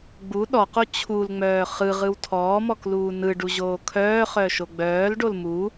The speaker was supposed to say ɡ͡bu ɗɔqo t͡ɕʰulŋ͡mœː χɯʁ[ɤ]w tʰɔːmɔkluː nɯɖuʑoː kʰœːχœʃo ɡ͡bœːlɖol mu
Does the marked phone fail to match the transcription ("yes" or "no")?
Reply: yes